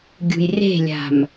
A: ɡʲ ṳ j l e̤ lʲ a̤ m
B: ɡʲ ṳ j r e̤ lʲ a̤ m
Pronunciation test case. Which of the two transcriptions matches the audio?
B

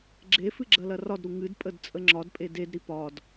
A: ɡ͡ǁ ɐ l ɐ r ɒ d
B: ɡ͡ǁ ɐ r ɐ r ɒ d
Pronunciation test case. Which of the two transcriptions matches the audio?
A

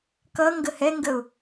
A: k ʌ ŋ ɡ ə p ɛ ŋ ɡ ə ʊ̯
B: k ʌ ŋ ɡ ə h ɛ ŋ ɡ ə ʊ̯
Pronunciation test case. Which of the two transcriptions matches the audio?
B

